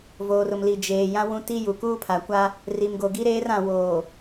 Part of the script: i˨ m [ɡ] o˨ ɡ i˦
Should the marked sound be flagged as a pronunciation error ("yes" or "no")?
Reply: no